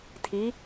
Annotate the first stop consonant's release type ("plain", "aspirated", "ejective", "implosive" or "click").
aspirated